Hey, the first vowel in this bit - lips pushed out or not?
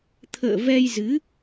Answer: no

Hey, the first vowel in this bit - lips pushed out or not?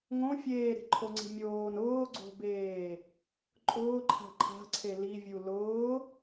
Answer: yes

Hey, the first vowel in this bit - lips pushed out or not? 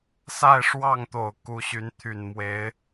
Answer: no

